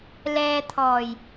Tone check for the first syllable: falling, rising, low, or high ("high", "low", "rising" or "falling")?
low